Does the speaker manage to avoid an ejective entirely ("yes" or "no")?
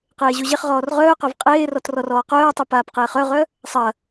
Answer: no